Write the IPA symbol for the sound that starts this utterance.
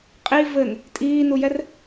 qʼ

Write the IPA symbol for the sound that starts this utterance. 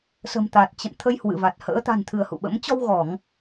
s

